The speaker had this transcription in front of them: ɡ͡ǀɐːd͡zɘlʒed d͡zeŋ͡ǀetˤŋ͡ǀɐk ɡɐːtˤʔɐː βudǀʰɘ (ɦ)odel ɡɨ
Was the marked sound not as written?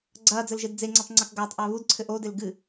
yes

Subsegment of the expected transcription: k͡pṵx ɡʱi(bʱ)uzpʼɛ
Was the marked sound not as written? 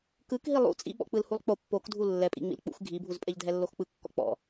no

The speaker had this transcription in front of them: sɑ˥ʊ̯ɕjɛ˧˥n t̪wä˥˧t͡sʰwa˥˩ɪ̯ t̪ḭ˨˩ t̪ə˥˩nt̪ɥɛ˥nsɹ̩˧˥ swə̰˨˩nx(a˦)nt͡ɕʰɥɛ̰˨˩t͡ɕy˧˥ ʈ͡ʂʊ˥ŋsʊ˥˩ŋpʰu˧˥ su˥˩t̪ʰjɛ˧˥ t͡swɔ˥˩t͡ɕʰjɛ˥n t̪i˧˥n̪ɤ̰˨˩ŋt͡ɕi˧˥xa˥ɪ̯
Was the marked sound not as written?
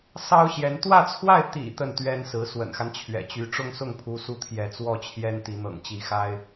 no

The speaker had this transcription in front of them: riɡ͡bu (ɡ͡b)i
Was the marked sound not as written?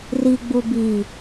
yes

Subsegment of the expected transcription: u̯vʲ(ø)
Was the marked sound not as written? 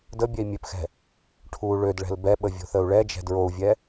yes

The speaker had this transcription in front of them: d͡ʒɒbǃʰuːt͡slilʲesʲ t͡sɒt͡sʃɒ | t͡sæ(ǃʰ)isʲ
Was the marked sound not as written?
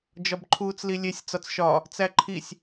no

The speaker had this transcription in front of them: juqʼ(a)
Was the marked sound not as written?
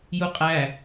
yes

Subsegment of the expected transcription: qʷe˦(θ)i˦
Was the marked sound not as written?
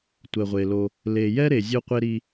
yes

